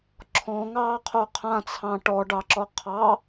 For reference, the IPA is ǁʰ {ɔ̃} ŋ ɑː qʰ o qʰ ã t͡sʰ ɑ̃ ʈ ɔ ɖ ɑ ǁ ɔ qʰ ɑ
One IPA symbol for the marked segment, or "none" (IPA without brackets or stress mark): ɔ̃